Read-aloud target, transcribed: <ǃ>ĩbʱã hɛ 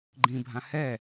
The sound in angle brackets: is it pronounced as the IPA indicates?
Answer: no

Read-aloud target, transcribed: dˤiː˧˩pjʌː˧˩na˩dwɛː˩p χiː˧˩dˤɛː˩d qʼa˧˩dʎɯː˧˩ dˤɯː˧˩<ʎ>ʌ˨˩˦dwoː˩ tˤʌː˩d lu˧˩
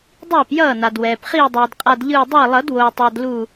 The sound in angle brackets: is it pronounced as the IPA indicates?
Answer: no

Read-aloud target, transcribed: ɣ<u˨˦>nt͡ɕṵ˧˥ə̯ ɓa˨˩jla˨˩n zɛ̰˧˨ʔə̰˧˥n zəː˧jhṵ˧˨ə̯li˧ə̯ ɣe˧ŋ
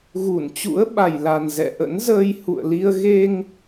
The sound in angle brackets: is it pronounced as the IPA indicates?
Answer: no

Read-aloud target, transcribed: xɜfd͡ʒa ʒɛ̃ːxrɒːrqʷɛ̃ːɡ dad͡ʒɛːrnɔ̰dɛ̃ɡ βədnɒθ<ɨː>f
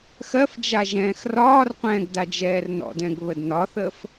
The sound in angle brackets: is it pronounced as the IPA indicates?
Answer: no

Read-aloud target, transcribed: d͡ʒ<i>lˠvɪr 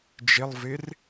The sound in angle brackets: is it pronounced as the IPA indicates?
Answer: no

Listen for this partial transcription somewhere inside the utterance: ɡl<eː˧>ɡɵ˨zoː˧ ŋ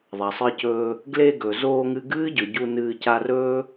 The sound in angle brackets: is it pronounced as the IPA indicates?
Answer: no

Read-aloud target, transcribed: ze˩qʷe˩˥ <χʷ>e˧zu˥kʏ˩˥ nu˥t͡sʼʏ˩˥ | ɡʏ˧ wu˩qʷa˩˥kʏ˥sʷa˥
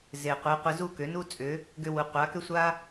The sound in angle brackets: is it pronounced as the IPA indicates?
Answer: no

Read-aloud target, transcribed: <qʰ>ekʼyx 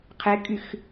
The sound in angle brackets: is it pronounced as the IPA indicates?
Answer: yes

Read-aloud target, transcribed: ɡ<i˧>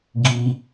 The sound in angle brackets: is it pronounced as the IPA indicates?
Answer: yes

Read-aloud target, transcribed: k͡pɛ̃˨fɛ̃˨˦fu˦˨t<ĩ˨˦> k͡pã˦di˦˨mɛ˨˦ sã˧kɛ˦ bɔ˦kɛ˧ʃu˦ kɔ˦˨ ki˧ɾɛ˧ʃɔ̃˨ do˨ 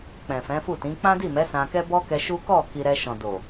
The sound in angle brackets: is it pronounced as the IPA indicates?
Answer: yes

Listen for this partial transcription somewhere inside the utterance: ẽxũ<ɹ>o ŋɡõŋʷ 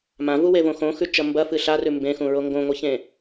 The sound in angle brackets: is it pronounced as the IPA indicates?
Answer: yes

